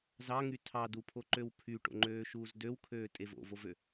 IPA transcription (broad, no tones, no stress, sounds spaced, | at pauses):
z ɑ ŋ y tʰ ɑ d u pʰ o ǃ ø w pʰ y ʈ o̰ ŋ͡ǃ øː ʃ uː z d ø w kʰ øː tʼ e v o̰ v o v ø